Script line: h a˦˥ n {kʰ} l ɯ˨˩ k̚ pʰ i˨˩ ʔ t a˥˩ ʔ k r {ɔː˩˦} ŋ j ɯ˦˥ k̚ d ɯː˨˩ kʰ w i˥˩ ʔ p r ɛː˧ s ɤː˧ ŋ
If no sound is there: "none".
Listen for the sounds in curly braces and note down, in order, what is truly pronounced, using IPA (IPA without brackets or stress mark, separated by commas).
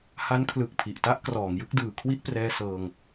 kʰ, ɔː˩˦